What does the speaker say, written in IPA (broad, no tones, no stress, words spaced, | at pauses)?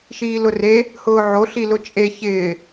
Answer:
ʃiːlʊre | hʊːʕo ɬilʊt͡ʃʼe çɪː